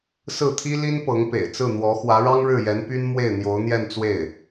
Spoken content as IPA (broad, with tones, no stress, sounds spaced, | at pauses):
s ɹ̩˥˩ t̪ʰ i˥ l i˥ n p ɤ˧˥ ŋ p ḛ˨˩ ɪ̯ t͡s ɹ̩˥˩ n̪ w ɔ˧˥ x w ä˧˥ ɻ ɑ˥ ŋ ɻ ɻ̩˥˩ j ɛ˧˥ n p y˥ n m w e˥˩ ɪ̯ n̪ j o˧˥ ʊ̯ n̪ j ɛ˥˧ n t͡s w e˥˩ ɪ̯